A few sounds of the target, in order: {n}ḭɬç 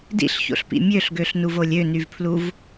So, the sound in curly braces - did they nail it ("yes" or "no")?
no